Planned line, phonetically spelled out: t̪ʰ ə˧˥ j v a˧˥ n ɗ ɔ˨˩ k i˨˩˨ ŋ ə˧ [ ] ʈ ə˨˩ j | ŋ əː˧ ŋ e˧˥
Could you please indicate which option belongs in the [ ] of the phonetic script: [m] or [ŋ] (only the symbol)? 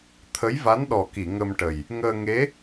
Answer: m